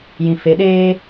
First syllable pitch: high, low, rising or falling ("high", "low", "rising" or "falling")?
low